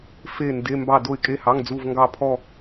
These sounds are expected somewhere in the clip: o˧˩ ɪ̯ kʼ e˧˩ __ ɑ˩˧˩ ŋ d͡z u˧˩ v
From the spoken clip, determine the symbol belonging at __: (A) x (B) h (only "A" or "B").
B